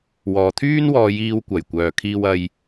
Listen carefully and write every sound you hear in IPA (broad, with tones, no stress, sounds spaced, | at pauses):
w ɔː˨ t̪ʰ yː˥ n w ɔː˧ j iː˧ w kʷ ɐ˨˩ j kʷ œː˨ kʰ iː˧ w ɐ˧ j